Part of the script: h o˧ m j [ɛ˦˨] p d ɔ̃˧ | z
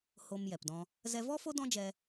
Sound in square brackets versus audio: incorrect: ɛ˨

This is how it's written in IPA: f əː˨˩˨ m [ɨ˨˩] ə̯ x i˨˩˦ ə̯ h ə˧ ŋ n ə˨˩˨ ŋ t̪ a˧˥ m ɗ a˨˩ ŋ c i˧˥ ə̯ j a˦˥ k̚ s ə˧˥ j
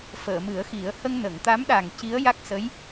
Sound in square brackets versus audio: incorrect: ɨ˨˩˦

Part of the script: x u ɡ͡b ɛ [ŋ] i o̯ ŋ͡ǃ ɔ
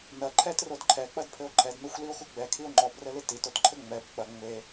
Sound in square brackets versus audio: incorrect: kʰ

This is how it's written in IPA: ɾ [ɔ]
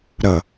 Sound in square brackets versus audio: incorrect: ʌ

